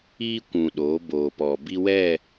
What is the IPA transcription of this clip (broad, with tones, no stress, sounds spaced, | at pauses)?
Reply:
iː˦ kʷ ũ˨ ɗ oː˨˦ b oː˨ p ɔ˨ b i˦ w ɛ˦˨